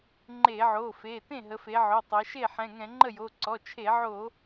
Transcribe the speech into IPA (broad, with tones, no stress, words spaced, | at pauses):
ŋ͡ǃe˧˩˧ʕo˩˧˩fe˩˧˩ tẽ˥˩ɦə˩˧fe˩˧ ʕo˩˧˩tˤɛ˩˧ ʃe˥˩ ħɛ̃˩˧˩ŋɛ̃˧˩˧ ŋ͡ǃə˥˩jo˩˧˩ ǀɔ˩˧˩t͡ʃʰe˧˩˧ʕo˧˩˧